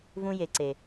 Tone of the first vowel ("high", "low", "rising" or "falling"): high